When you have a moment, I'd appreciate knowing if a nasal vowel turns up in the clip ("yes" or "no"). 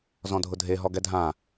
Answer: yes